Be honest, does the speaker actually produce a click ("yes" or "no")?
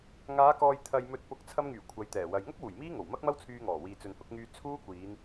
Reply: no